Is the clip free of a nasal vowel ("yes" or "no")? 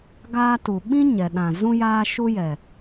no